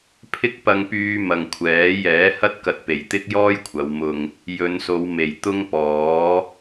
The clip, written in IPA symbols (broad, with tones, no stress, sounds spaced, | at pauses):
pʰ ɪ˥ k̚ p ɐ˥ ŋ p yː˥ m ɐ˨ ŋ kʷʰ ɛː˨˥ j ɛː˨˥ h ɐ˥ t̚ k ɐ˧ t̚ p e˨˩ j t̪ ɪ˥ k̚ j ɔː˥ j kʷʰ ɐ˨˧ w m ʊ˧ ŋ | j ɵ˨˧ n s o˨˧ w m e˨˩ j t̪ ʊ˥ ŋ p ɔː˨˥